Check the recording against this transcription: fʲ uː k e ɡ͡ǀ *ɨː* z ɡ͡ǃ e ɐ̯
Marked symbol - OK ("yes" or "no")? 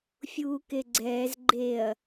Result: no